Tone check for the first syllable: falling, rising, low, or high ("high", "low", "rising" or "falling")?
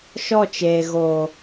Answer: falling